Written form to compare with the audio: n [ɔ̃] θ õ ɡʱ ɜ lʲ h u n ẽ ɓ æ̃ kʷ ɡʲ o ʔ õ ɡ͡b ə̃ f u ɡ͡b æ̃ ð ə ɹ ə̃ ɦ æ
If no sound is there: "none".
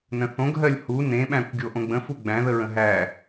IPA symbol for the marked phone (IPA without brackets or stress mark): ə̃